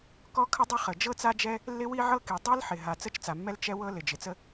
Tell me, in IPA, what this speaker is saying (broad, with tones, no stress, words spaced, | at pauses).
kɔ˥ kʰə˥dˤə˥χə˩ d͡ʒɤ˥t͡sa˥d͡ʒɛ˥ | lːɪ˥wi˥ʕɤ˥ki˩ dˤi˥lħɪ˩ ɦa˩ t͡sə˥t͡ʃt͡sa˩mːɛ˥l t͡ʃɛ˥wɤ˥ lɪ˩d͡ʒɪ˩t͡sə˥